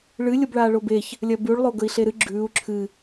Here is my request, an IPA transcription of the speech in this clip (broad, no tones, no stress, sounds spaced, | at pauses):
ɭ ɨ lʲ o b ɭ aː ɭ o b e ç | lʲ ɐ b ʉ ɭ lˠ o ɡ ɵ i̯ ɬ e ɾ ɨ ɡ͡ǁ ʉː u̯ ǁʰ ɨ